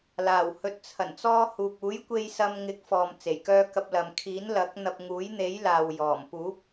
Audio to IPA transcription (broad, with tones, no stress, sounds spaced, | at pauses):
l aː˨˩ w h ɵ˨ t̚ t͡sʰ ɐ˨˩ n t͡s ɔː˧ h uː˨ k̚ uː˨˥ j kʷ e˧ j s ɐ˧ m ŋ ɪ˨˥ k̚ f ɔː˨ m t͡s e˨˩ j k œː˧ k ɐ˧ p̚ l ɐ˨ m kʰ iː˨˥ n l ɐ˨˥ k̚ n̪ ɐ˧ p̚ ŋ uː˨˥ j n̪ e˨˥ j l aː˨ w j ɔː˨˩ m p uː˨˥ p̚